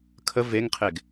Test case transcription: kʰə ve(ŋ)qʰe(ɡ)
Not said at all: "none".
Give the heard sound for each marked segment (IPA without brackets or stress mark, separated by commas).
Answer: ŋ, ɡ